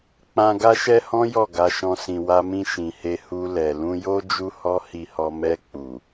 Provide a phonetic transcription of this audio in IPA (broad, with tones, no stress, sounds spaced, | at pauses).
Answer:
k͡p ã˧ ɡ a˦ ʃ ɛ˦ h ɔ̃˦ j ɔ˦˨ ɡ a˧ ʃ ɔ̃˧ s ĩ˨ w a˧ m ĩ˧ ʃ ĩ˨ h e˧ h u˧ l ɛ˨ l ũ˧ j o˦ d͡ʒ u˦ h ɔ˦ h i˧ h ɔ˧ m ɛ˧ k͡p u˨